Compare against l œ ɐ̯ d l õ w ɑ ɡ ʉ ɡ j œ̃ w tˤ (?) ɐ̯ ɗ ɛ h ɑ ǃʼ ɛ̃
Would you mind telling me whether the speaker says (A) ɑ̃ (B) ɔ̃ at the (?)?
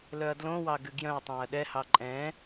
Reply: A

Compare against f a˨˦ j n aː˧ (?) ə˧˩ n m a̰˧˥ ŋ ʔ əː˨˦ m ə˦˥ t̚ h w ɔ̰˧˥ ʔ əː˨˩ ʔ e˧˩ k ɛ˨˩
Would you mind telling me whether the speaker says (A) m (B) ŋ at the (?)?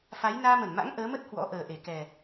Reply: A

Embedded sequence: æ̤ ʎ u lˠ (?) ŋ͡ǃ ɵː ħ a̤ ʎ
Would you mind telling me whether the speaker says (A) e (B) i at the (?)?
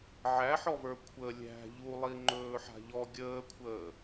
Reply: B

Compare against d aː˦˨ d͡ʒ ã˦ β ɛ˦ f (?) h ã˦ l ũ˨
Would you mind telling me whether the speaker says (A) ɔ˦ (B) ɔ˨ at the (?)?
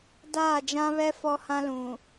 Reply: A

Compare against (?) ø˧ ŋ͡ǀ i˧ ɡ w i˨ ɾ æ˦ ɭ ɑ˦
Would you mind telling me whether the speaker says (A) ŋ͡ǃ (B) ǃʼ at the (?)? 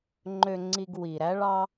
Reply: A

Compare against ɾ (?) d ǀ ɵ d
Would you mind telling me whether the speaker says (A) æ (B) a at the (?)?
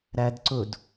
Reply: A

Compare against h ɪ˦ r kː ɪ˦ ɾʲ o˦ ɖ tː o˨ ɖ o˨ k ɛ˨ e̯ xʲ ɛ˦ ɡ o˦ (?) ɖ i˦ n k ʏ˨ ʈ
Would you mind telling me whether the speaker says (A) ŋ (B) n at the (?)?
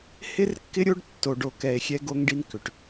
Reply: A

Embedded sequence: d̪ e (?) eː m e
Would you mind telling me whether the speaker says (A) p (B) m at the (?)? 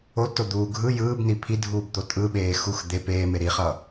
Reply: A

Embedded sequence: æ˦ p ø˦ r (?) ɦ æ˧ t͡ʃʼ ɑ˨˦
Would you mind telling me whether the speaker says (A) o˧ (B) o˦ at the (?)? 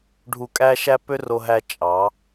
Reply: A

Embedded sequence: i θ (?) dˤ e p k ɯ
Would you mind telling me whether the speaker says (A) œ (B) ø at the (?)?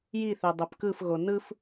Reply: B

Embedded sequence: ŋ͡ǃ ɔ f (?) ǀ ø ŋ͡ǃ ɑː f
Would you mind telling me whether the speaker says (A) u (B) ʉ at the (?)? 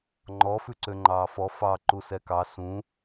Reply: B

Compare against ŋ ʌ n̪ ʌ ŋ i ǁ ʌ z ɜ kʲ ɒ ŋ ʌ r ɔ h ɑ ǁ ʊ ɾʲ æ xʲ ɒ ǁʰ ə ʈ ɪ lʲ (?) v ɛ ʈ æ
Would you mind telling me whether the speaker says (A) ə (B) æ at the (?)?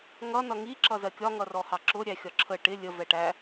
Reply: A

